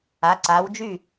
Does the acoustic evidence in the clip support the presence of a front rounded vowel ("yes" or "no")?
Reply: yes